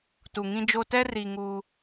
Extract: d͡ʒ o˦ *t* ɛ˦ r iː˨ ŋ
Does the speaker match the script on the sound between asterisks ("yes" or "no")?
yes